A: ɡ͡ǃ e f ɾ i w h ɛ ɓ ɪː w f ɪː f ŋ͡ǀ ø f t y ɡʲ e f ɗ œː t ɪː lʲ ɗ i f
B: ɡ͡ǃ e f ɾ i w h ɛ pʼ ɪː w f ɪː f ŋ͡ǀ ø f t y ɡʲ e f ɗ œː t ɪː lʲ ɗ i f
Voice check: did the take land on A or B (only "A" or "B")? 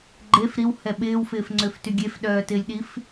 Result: A